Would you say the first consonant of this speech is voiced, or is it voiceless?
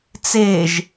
voiceless